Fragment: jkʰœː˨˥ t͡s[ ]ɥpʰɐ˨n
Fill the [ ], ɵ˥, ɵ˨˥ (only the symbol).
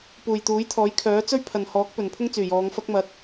ɵ˥